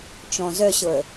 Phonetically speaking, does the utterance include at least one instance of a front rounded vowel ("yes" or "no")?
yes